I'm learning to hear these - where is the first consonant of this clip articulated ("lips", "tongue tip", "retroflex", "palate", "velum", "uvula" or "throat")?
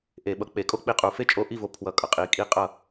throat